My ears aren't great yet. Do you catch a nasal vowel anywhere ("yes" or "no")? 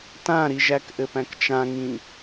yes